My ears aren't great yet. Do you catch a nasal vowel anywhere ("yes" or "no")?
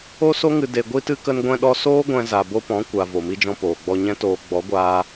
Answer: yes